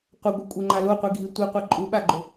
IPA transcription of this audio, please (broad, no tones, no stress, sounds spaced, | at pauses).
qʷ a ɡʷ i kʷʼ e ŋ͡ǃ a l o qʷ i ɡʱ i tʷ i qʷ ɛ ǃʼ u ɓ a ɡ͡ǃ o